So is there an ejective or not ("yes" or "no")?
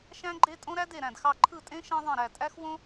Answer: yes